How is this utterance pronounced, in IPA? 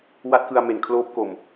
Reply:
w a˦˥ t̚ k ɯ˧ a̯ m e˨˩ n kʰ l oː˦˥ p̚ k o˨˩ m

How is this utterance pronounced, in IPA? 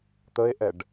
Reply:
t̪ ə e̯ ʔ ɛ ɖ

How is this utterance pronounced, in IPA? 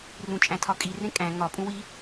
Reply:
r ũ t͡ʃʼ æ̃ tʰ ɒ kʼ i r ẽ kʼ æ̃ ŋ ɒ pʼ ũ w i

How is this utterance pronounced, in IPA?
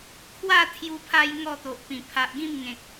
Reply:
kʰ w a˥˧ t̪ʰ j u˧ pʰ a˧ j ŋ ɔ˥˧ t̪ o˨ ʔ p ĩ˨˩ pʰ a˨ ʔ ɡ ĩ˥˧ m ŋ ẽ˨ k̚

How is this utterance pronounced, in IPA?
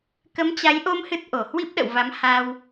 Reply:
k ə˨˦ m t͡ɕ a˨˦ j ʔ o˧ m h ɨ˦˥ t̚ ʔ o˧˩ h w i˦˥ p̚ ɗ ə̰˧˨ w v a˨˦ m h a˧ w

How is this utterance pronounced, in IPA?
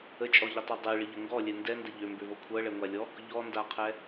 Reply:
ə t͡ʃʼ ɔ ʎ ə tˤ ɤ dˤ ɛ ɭ ɪ ʎ ə ŋ ɡ ɔ lʲ ɛ n d ɛ n d ə ʎ ø m b ø v ɤ kʷʰ ɤ ɭ ɛ ŋʷ a lʲ ɔ | ʎ ɔ n d a qʰ ɛ

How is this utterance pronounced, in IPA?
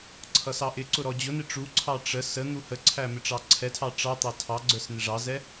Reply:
ǀʰ ʌ s ɑ ʔ ɪ ǀ ʊ ɾ ɔ d͡ʑ ʊ n ɪ ʈ͡ʂ u ǀʰ ɑ ʈ͡ʂ ə s ə n̪ u h ə ǀʰ æ m ɪ ʈ͡ʂ ɑ ǀʰ ɛ tʰ ɑ ʈ͡ʂ ɑ t̪ ɑ tʰ ɑ ɡ͡ǀ ə˞ s n̪ ɪ ʐ ɑ z ɛ

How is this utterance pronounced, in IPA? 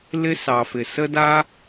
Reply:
l ɪ˧ s ɑ˨ f ɪ˨ s ə˦ d a˦

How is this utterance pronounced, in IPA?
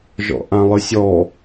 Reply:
ʒ ɔ̰ ʔ ã lˠ ɨ sʲ ɔ

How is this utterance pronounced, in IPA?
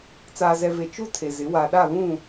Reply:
t͡s aː˨ z ɛ˨ v e˨ t͡ʃ u˦ tʰ e˨ z ɪ˨˦ w a˨ ɗ a˦˨ β ũ˦˨

